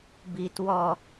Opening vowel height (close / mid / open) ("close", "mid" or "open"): close